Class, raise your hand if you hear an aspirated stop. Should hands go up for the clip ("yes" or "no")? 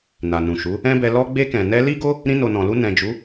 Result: no